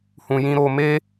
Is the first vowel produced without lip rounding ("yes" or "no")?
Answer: no